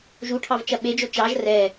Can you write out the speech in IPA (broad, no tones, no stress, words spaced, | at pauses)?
ʒuʈʰɑvt͡ʃɐ ɓed͡ʒo t͡ʃɑʒ rɛ